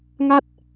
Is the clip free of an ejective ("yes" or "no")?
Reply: yes